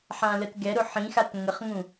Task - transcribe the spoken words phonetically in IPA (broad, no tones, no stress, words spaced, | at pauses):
ħãlətɡɛɾʊ ħĩxat ŋəχŋũ